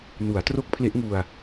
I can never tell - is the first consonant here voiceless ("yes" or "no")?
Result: no